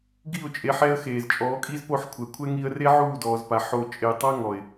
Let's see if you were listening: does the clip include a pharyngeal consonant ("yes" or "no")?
yes